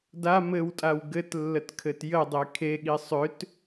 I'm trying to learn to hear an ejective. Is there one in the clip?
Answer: yes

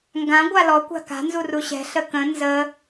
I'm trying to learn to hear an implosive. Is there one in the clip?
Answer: no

